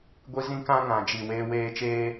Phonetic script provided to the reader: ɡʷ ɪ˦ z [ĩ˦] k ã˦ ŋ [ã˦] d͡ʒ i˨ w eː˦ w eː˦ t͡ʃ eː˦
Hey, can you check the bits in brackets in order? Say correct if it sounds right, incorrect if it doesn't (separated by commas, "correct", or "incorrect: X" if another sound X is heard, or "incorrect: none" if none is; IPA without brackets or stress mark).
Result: correct, incorrect: ã˨